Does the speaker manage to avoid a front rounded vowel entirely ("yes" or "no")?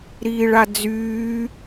no